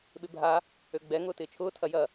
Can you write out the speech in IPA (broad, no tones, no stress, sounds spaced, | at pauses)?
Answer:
ɓ ɪ bʱ a | ø ɡ͡b ɛ ŋ ʊː t ɪː t͡ʃʰ ʊː tʰ ɐ j ɐ